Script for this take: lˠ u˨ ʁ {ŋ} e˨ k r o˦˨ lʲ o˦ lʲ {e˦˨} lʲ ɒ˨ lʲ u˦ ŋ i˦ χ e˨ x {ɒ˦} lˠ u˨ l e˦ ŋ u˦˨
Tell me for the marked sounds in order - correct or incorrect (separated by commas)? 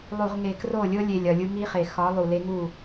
correct, incorrect, incorrect